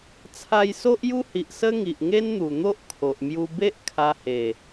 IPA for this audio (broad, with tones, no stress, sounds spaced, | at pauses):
t͡sʰ a˧ j s o˦ ʔ j u˦ h i˨ ʔ s ə˦ ŋ i˨ ʔ ŋ e˦ n n̪ u˨˩ n̪ o˦ ʔ kʰ o˨ ʔ m j u˧ b e˦ ʔ kʰ a˧ h e˨˩